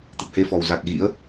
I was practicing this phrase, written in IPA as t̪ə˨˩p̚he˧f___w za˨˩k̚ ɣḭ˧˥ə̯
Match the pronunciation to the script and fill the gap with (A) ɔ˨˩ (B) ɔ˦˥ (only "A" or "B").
A